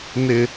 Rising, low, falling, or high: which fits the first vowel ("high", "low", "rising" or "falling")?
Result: high